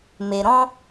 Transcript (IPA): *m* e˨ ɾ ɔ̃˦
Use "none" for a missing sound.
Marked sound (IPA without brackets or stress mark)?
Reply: m